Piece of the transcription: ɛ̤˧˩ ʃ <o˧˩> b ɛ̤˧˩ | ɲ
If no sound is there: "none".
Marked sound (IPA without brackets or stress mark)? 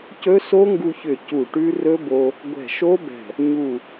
o˦˥